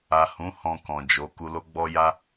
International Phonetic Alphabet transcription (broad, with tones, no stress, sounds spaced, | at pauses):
a˨ h ũ˨˦ h ɔ̃˧ k ɔ̃˨ d͡ʒ o˨˦ k u˧ l o˦ ɡ͡b ɔ˦ j a˦